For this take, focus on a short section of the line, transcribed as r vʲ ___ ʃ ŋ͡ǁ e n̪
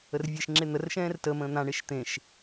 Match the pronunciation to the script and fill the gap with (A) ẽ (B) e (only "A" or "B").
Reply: B